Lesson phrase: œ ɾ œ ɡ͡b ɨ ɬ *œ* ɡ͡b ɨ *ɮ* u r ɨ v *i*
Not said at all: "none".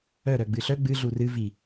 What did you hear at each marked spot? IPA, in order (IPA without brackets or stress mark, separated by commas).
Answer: œ, ɮ, i